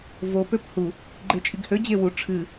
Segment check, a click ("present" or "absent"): present